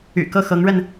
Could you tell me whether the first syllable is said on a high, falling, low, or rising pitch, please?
low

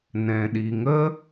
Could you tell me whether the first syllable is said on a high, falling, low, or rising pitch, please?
low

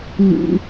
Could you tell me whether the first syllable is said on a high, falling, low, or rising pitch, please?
high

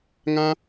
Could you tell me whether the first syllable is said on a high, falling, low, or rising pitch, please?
high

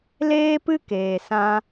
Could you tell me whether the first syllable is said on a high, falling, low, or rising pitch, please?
high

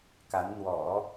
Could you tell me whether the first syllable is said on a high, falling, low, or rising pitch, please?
rising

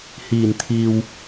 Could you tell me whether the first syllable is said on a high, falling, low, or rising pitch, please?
low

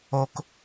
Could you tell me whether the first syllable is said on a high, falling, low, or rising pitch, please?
high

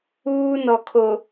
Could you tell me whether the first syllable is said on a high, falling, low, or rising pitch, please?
high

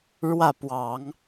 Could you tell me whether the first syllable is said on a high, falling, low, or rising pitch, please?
falling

